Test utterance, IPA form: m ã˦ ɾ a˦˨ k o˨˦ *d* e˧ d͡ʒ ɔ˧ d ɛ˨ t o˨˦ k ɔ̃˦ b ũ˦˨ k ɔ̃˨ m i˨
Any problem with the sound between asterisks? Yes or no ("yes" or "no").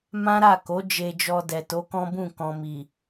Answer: yes